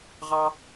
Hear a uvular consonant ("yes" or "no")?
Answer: yes